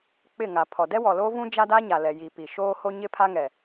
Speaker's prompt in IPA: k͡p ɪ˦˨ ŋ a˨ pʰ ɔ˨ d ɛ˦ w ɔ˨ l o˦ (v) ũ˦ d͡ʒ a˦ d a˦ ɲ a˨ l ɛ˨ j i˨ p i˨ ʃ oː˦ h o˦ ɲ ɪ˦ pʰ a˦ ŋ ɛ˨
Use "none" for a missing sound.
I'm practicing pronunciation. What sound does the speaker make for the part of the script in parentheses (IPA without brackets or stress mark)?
v